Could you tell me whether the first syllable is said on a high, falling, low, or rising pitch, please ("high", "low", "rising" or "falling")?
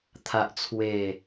high